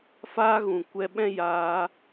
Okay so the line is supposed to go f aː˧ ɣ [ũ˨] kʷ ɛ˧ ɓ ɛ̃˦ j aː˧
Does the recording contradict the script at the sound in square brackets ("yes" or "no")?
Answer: no